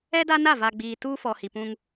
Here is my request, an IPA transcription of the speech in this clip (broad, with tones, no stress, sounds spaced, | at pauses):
ɛ˦ d a˦ n a˦˨ v a˨ ɡ͡b iː˨ t uː˦ f ɔ˨ h i˨ p ũ˦ ŋ